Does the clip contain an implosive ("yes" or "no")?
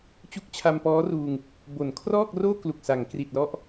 no